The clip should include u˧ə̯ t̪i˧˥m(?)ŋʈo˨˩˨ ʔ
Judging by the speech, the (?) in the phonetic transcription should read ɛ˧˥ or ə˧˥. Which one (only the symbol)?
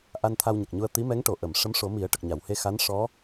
ɛ˧˥